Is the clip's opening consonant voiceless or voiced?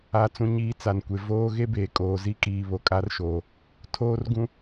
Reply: voiceless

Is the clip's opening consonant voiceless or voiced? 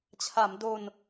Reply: voiceless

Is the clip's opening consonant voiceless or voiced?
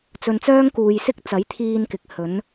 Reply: voiceless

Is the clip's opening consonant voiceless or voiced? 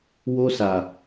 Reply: voiced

